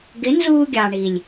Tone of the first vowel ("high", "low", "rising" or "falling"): rising